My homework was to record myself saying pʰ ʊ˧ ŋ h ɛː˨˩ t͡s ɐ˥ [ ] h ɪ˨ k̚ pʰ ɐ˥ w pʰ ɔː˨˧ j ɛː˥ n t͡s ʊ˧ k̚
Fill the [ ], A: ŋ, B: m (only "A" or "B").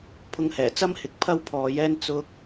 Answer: B